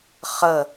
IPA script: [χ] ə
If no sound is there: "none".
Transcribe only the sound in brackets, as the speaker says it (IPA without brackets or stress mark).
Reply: χ